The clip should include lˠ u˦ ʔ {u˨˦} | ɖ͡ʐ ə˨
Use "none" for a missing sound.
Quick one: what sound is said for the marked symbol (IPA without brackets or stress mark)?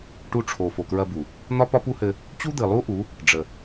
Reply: u˨˦